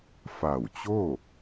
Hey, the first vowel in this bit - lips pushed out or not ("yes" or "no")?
no